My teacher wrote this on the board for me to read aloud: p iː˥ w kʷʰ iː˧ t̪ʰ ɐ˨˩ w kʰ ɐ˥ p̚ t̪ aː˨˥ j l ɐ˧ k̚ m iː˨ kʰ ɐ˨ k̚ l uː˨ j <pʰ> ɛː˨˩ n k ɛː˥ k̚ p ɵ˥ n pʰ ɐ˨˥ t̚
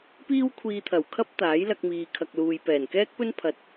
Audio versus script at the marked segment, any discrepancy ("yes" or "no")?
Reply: yes